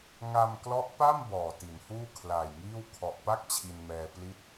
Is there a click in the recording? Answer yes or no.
no